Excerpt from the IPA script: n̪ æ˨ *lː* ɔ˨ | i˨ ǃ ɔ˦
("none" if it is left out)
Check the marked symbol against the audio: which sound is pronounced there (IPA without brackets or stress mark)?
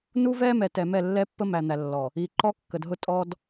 lː